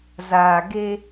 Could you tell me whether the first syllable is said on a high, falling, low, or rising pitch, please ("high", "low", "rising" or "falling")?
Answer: low